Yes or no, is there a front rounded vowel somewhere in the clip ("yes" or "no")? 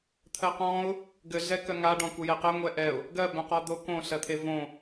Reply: yes